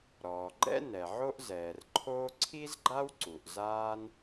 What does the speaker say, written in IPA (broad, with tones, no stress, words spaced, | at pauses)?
ɾɔː˩ɡ͡ǃɛ̰˥ nɛ˩ʕo˥ʔzɛː˩rǃʰoː˥ ǀʰi˥zɡ͡ǃa˥wǀu˩ʔ zaː˥n